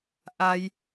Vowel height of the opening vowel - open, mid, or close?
open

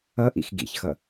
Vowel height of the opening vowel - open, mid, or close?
mid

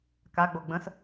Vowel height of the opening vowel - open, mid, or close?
open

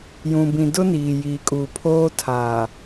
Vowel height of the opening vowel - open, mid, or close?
close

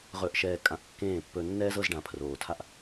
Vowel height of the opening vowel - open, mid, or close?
mid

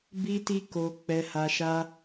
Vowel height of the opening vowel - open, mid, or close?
close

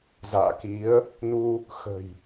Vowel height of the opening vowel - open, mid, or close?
open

